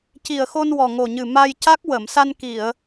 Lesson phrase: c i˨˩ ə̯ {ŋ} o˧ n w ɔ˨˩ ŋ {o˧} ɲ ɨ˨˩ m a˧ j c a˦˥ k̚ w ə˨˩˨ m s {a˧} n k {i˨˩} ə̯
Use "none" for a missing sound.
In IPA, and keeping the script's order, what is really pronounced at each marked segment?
x, o˨˩, a˧, i˨˩˨

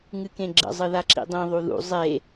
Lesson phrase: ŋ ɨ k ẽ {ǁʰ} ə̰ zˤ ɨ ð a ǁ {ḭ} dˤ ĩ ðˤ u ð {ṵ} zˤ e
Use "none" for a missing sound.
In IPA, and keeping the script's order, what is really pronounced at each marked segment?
ɡ͡ǁ, ḭ, ṵ

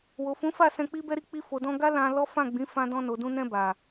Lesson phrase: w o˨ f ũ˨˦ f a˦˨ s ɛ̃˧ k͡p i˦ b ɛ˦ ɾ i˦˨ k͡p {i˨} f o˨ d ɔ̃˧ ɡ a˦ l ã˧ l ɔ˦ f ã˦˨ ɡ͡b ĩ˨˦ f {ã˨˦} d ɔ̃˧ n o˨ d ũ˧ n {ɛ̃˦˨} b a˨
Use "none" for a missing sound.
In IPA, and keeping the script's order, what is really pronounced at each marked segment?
i˧, ã˧, ɛ̃˧

